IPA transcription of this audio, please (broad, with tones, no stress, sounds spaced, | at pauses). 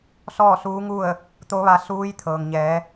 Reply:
s ɔː˥˨ s uː˧˥ ŋ u˥˨ ə̯ | t̪ o˧˥ ʋ a˧ s uː˧˥ j t̪ʰ ɤː˩ ŋ ɲ ɛː˩˧